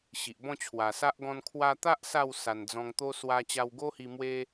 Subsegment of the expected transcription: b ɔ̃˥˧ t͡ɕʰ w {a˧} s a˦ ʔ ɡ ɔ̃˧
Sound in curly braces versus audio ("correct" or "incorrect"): incorrect